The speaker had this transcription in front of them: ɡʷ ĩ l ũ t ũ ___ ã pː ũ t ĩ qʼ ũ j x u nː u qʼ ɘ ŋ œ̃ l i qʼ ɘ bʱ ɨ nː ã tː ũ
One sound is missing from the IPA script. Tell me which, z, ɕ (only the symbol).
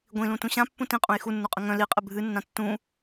ɕ